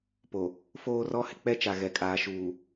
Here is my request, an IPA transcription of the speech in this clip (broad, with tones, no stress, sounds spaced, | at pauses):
p o˨ | f oː˦ r ɔ˦ h ɪ˨ k͡p ɛ˦ t͡ʃ a˨ ɣ ɛ˨ kʼ aː˨ ʃ uː˨